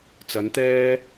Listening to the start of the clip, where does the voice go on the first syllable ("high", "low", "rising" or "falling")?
rising